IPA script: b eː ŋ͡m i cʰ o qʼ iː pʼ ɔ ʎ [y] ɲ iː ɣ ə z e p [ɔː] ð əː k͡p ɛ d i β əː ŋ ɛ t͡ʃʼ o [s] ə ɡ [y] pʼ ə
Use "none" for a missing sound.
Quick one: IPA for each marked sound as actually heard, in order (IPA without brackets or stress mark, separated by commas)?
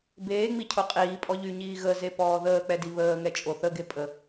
y, ɔː, θ, e